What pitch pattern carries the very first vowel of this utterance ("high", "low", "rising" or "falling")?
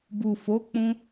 low